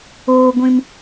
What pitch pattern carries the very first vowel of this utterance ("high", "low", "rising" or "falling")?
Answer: low